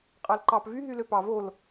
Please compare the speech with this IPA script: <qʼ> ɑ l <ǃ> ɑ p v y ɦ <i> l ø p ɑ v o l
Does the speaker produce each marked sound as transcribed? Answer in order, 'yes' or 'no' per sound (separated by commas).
yes, yes, no